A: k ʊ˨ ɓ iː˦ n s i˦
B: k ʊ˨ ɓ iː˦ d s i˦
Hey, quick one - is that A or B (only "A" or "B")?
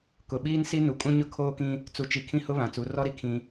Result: A